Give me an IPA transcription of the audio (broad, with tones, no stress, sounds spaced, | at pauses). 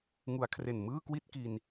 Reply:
ŋ u˩˦ a̯ kʰ r e˨˩ n m ɯː˥˩ k w i˥˩ t̚ k i˧ n